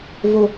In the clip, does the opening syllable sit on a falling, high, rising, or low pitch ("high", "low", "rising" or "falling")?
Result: high